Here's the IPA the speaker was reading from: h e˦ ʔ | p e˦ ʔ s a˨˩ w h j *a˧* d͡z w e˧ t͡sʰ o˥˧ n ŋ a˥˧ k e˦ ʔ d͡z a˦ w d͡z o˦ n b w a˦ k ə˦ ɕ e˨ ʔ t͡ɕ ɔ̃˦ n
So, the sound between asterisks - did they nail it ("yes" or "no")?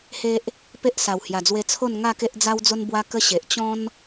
no